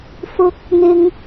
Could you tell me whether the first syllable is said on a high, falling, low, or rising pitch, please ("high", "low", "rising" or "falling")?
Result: high